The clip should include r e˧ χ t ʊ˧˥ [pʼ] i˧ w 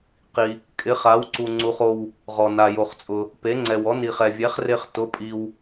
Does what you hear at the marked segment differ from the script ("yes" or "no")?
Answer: no